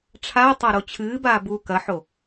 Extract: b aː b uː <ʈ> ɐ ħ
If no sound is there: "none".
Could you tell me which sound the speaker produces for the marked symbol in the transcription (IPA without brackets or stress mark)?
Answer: k